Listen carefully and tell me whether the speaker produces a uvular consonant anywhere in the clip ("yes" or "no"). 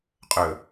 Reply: yes